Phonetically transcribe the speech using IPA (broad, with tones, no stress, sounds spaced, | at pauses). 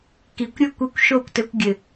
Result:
k i˨ kʷ ɾʲ ɘ˦ kʷ i˧ kʷ ʃ o˦˨ kʷ t ɘ˧ kʷ ɡʲ ɘ˨